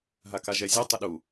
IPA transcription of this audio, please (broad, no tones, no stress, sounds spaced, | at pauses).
ɦ a k a ʒ ɛ zʲ ɒ tˤ ə ɗ u